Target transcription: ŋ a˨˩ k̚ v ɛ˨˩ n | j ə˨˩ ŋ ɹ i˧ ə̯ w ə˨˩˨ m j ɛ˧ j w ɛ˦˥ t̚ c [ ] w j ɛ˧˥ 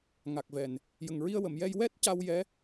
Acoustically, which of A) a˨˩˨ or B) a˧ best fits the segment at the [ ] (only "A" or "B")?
B